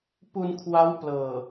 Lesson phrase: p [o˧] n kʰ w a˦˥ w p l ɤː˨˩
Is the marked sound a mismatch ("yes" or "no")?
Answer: yes